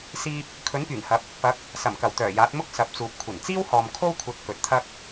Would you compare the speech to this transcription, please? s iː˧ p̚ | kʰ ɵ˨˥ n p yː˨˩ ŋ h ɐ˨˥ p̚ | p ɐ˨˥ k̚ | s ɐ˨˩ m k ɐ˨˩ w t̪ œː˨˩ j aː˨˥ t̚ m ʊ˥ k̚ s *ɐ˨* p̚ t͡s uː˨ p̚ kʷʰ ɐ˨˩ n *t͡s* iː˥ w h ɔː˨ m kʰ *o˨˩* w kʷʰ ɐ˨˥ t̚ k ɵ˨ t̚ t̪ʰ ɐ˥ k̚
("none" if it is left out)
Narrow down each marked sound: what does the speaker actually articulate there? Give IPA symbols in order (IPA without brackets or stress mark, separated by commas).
ɐ˨, t͡s, o˥